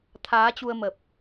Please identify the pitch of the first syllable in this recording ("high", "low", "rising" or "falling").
rising